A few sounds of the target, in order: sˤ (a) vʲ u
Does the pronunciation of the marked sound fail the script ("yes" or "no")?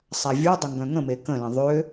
no